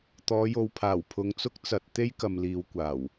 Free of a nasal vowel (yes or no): yes